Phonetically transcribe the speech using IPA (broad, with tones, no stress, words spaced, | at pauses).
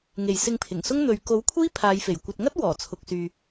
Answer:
ŋe˨˩j sɪ˧ŋpʰɪ˨˩ŋsʊ˥ŋ n̪ɵ˨ɥ ko˨˥wkʷʰiː˥ pʰaː˨˧jfe˨˩j kʷɐ˨t̚ŋɐ˥t̚ wɔː˨˩t͡sʰʊ˨k̚syː˨